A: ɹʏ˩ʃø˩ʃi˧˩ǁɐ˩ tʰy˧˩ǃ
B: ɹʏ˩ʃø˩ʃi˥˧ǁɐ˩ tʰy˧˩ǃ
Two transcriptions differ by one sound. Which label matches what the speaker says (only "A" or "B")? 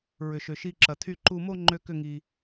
A